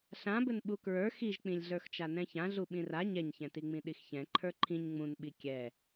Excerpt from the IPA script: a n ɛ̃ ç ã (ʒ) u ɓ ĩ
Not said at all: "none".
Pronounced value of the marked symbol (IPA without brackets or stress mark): ɮ